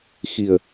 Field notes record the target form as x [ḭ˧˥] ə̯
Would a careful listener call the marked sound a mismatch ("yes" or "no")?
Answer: yes